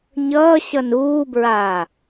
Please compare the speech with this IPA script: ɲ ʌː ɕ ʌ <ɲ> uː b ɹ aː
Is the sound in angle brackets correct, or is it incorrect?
incorrect